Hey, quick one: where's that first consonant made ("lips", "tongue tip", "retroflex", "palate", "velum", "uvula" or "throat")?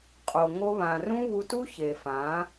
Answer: uvula